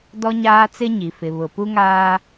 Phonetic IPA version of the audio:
d ɔ˦ ɲ aː˦ t͡s ɪ˦ ɲ i˨ f ɪ˨ β ʊ˨ p u˦ ŋ aː˦

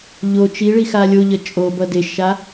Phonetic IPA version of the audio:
ʎ o t͡ʃ i ɭ i x a lʲ o ʎ ʌ t͡ʃʼ o b ʌ d e ʃ a

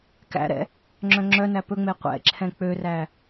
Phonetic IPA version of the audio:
k æ̰ ɾ ɛ̰ | ŋ͡ǁ œ̃ ŋ͡ǁ œ n æ p ɵ ŋ͡m e qʷ ɛ̰ ǁʰ ɛ̃ k͡p ø r æ

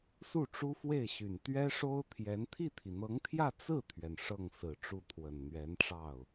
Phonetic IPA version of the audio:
s u˥˩ ʈ͡ʂ u˥ f w e˥˩ ɪ̯ ɕ y˨˩ n t̪ ɥ ɛ˥ ʂ o˥ ʊ̯ t̪ʰ j ɛ˧˥ n t̪ʰ i˥˩ t̪ʰ i˩ n̪ ɤ˧˥ ŋ t̪ʰ j ä˥˧ t͡s ɹ̩˥˩ t̪ʰ ɥ ɛ˩ n ʂ ɤ˥˩ ŋ s ɹ̩˨˩ ʈ͡ʂ u˥˩ t̪ʰ w ə˨˩ n n̪ ɥ ɛ˧˥ n ʈ͡ʂ ɑ˥˩ ʊ̯

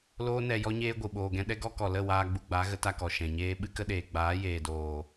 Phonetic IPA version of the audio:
l oː˦ n ɛ˧ j ɔ˦ ɲ eː˦ ɡʷ ɨ˨ ɓ oː˨ ɡ ɛ̃˧ ɗ ɛ˦ ɡ ɔ˦ k ɔ˨ l ə˦˨ w aː˧ ɡ͡b u˧ ɡ͡b a˨˦ ɣ ə˨˦ t a˧ k ɔ˨ ʃ ɛ̃˨ ɲ eː˦ ɓ ɨ˦ k ə˦ ɗ eː˨ ɡ͡b aː˨˦ j eː˨ d oː˨

